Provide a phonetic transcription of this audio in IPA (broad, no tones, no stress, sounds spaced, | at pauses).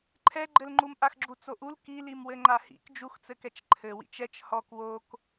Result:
ǃʰ ɛ ɡ͡ǃ ɘ l ŋ͡ǃ u m ʔ a x ɡ͡ǁ u t͡s o ʔ u l k i l i m w ɘ ŋ͡ǃ a h ḭ k d͡ʒ u x t͡s ɘ k ɛ t͡ʃ ǃʰ ɘ w ḭ t͡ʃ ɛ t͡ʃ h ɔ k w o k